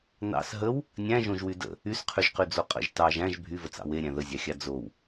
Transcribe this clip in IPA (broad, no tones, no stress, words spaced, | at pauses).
nɑ̰s ɦəw | nʲæ̃ʒõʒwy də̰ | ysqʰyʒqyd͡zo qʼə̰ʒ tɑʒ æ̃ʒ bʱyvət͡sɑ̰ weɾʲæ̃ ðəzʲɑxʲɑ d͡zow